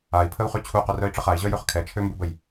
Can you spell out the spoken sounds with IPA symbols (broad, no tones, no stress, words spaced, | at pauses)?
ai̯pʰəu̯χy t͡ɕʰuqœrœi̯ʈ͡ʂəχ ai̯ʑœjøχ kʰɛt͡ʃʰømbubəj